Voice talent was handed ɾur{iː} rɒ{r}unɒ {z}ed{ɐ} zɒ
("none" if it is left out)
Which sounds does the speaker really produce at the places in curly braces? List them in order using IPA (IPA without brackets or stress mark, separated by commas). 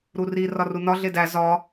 i, r, ɮ, æ